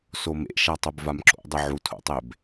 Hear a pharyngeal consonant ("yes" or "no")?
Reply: yes